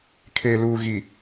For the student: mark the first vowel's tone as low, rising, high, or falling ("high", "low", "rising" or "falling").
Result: low